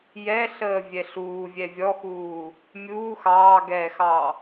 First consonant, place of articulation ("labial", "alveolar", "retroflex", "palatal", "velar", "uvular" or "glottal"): palatal